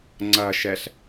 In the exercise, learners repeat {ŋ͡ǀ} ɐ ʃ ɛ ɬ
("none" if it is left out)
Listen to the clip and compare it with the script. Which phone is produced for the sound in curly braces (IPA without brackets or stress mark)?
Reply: ŋ͡ǀ